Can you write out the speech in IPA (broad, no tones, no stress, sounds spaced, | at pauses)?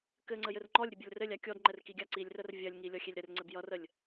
k ɘ ŋ͡ǀ ə j ɘ r ŋ͡ǃ ɔ lʲ ɾʲ ə bʲ ɔ lʲ r ɘ lʲ a kʲ ɔ d ŋ͡ǃ ɛ r k i ɡʲ a ǀ i lʲ r ə r vʲ ɐ lʲ ŋ i lʲ ɔ xʲ e lʲ ɾ ɘ r ŋ͡ǀ ɘ b j ʌ r ə lʲ